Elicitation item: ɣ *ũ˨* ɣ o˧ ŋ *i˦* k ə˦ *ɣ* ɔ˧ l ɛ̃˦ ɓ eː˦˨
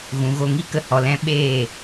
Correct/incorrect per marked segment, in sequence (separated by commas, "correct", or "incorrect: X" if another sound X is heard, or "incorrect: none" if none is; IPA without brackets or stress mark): correct, correct, incorrect: h